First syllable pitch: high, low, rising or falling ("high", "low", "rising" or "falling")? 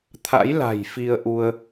rising